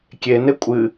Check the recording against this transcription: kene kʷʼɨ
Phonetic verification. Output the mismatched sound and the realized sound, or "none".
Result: k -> kʲ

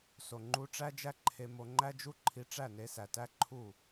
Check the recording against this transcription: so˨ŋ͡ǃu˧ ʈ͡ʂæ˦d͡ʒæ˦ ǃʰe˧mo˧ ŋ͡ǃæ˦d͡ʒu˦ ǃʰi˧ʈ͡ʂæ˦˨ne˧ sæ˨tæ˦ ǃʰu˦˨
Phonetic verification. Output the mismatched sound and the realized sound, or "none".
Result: none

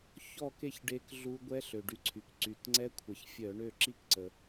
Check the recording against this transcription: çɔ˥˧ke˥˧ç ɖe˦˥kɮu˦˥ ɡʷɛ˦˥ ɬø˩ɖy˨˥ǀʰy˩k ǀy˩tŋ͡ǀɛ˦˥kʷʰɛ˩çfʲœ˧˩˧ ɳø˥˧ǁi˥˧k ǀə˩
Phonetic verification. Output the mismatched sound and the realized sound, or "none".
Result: none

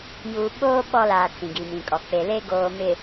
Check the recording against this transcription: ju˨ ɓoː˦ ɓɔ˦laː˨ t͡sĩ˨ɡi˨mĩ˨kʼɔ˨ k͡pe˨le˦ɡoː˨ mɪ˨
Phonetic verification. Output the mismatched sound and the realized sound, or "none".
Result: none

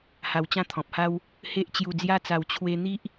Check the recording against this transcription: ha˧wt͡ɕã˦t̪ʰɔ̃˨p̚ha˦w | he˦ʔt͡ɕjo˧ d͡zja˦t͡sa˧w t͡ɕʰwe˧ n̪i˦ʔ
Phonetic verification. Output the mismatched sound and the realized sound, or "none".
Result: o˧ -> u˧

